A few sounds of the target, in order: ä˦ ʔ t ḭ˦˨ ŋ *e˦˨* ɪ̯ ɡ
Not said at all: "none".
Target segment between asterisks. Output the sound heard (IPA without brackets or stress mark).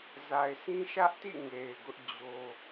e˨